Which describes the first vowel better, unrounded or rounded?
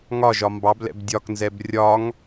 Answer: rounded